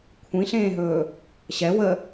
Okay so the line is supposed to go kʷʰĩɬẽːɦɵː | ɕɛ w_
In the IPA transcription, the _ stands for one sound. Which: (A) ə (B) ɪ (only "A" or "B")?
A